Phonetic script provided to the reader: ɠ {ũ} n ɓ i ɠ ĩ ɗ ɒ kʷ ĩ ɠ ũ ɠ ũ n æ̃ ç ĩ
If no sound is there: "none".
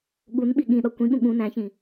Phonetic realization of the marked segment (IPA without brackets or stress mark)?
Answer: u